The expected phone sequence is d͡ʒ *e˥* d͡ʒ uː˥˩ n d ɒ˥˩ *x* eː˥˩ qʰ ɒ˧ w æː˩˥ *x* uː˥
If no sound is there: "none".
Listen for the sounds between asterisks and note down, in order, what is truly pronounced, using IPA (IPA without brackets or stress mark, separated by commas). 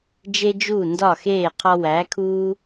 e˥, x, kʰ